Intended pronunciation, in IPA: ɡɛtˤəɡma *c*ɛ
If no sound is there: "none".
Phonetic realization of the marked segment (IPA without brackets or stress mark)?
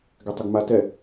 t